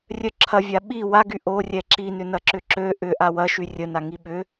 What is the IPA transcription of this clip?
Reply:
rʲœǁʰɐvʲa ɓi waɡy ʔo rʲɛǁinʏ nɐǁʏǁø ʔʏ ʔawɐʃy rʲəna ŋiɓʏ

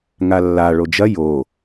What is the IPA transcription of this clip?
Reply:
ŋalːa ɭod͡ʒɐ jo

